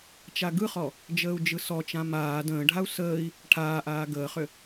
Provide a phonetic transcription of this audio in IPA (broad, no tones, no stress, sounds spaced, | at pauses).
t͡ʃ a ɡ ɯ χ ɔ | d͡ʒ əː u̯ d͡ʒ ɯ s ɔ t͡ʃ ã m aː d ə̃ː ɖʱ a u̯ s əː i̯ | ʈʰ aː ʔ aː ɡ əː χ ʏ